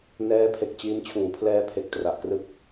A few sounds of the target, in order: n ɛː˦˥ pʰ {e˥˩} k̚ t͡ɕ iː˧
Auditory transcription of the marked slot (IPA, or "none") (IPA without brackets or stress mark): e˨˩